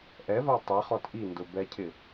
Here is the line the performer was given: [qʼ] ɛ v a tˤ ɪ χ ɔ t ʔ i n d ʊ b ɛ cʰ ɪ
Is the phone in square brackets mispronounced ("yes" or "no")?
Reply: yes